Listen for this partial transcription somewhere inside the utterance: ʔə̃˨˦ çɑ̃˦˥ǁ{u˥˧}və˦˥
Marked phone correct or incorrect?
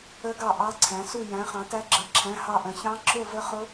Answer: incorrect